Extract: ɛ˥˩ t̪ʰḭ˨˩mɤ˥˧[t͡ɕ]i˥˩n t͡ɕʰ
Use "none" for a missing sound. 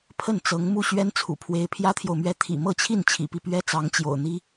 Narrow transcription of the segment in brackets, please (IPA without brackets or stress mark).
t͡ɕʰ